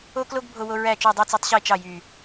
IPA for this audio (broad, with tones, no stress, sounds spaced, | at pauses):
o˥ k l o˥ ɡ bʱ o˥ w o˥ ɹ æ˥˧ t͡ʃ o˥˧ dˤ ɯ˥˧ t͡s o˥ tˤ ɕ i˥˧ t͡ʃ ɑ˥˧ j y˥˧